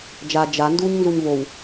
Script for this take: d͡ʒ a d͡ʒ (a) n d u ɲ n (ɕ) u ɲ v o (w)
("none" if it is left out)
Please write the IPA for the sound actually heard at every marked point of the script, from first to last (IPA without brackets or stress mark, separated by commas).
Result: a, z, w